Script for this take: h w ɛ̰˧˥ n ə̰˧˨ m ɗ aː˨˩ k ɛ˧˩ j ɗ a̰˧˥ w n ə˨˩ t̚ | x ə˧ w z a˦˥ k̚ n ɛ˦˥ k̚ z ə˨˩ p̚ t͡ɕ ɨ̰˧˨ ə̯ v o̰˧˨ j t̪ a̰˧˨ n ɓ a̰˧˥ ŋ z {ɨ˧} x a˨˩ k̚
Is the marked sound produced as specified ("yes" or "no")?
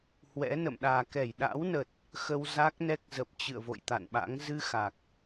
yes